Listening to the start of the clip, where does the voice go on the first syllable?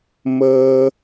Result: high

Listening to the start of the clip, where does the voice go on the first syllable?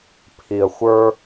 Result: low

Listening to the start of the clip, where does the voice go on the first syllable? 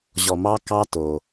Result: low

